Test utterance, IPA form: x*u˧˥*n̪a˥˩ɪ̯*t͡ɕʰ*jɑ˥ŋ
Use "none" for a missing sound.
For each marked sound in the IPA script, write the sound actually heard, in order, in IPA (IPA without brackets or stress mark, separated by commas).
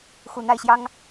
u˨˩, ɕ